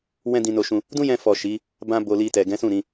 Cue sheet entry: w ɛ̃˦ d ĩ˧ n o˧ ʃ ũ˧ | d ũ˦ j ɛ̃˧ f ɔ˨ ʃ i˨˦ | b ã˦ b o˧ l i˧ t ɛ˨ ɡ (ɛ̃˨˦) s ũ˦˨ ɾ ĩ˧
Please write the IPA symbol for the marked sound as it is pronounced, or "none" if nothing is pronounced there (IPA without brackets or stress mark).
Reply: ɛ̃˨˦